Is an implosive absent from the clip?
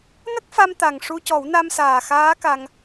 yes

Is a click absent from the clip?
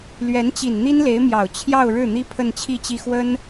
yes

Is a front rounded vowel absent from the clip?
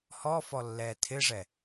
yes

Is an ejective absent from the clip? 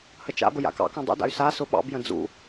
yes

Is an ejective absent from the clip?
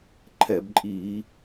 no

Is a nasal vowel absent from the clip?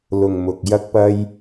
yes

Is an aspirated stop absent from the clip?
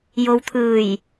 no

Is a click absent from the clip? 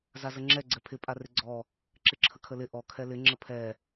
no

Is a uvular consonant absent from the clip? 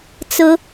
yes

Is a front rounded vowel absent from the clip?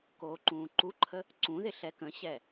yes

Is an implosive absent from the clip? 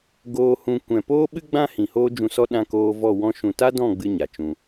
no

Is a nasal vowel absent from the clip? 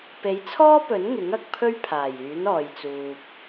yes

